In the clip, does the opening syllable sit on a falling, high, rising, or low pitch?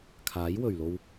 rising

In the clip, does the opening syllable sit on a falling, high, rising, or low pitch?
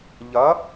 rising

